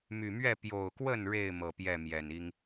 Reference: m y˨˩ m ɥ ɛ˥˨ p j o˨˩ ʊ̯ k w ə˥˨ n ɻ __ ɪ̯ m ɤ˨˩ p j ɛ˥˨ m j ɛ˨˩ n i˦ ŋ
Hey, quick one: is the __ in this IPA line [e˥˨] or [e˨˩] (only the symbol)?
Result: e˥˨